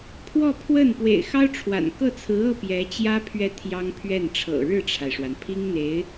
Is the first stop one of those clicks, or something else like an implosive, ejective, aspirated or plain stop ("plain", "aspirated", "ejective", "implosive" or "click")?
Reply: aspirated